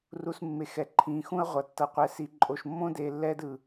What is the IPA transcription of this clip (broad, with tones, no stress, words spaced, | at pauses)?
ru˧smːe˨xɛ˨ ǃʰĩː˨xũ˦ɐ̯ ʁʷʌ˨tːʌ˧qʷɛ˧si˧ ǃʼo˨ʃmːõ˦deː˨ lːɛː˦dɯ˨